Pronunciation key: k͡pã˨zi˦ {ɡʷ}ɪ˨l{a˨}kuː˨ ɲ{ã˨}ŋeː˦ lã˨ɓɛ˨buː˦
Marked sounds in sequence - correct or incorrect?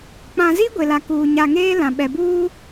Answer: correct, correct, incorrect

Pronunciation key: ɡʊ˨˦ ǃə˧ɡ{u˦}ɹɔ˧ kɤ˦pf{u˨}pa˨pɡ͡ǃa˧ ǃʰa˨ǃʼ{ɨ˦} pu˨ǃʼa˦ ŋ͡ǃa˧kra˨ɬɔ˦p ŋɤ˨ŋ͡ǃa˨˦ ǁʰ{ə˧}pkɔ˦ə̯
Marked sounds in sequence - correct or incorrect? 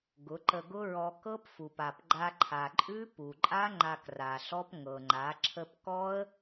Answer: incorrect, correct, incorrect, correct

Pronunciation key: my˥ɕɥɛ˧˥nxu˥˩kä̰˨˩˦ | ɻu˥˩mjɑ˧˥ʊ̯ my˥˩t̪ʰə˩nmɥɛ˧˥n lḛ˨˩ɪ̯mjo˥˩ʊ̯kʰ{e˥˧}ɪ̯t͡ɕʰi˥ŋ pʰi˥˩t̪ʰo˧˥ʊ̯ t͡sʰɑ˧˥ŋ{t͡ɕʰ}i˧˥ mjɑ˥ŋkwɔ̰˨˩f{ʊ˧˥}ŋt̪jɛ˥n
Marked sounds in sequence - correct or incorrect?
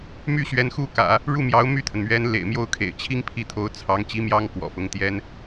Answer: incorrect, incorrect, correct

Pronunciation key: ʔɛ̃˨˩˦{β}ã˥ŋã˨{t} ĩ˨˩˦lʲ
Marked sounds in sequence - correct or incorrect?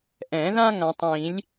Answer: incorrect, incorrect

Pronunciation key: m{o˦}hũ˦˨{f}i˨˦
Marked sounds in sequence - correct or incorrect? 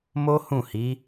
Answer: correct, incorrect

